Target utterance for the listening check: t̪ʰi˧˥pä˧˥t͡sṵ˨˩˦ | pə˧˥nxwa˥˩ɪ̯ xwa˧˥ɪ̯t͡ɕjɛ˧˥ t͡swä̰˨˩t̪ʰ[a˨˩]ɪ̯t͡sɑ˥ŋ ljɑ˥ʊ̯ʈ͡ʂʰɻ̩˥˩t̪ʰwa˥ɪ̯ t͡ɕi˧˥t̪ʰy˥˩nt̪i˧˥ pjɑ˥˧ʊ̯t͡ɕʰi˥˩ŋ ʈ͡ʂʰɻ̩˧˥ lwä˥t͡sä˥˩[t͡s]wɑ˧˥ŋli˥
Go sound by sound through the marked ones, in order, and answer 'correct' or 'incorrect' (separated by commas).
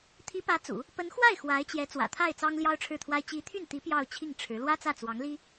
incorrect, correct